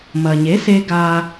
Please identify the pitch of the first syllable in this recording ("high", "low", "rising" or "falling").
low